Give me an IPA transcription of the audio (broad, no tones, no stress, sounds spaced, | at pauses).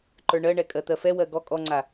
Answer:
ǃ ə˞ ɳ ɜ ɳ ɛ kʼ ɜ t̪ ɜ f ɛ w ɜ ɡ ɔ kʼ ɔ ŋ͡ǀ a